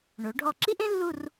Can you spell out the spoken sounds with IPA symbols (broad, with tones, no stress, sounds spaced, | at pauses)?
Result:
ɳ o˩˧ ɖʱ ɔ˧˩ ǁ i˥ ʔ ẽ˥ lː u˥˧ r